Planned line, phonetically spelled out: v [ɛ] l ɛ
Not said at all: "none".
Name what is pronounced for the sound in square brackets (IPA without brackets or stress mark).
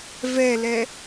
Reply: ɛ